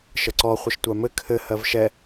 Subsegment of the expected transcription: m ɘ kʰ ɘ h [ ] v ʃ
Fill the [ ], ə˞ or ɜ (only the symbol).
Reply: ɜ